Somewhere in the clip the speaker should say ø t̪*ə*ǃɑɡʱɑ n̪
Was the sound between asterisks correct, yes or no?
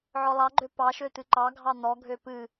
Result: no